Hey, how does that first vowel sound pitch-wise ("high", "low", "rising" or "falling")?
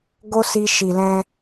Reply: high